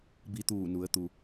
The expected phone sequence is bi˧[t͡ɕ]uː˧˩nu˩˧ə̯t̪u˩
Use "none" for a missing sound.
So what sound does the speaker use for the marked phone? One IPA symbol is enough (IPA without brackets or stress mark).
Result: t̪